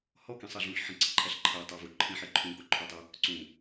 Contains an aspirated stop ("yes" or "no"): yes